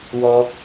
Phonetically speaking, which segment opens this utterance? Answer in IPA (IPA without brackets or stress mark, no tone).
w